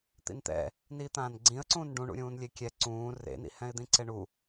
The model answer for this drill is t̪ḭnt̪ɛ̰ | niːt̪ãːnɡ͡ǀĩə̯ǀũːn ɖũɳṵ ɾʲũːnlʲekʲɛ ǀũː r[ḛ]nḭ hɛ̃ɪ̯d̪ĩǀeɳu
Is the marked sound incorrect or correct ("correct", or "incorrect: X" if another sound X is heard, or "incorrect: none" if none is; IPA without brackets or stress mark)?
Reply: correct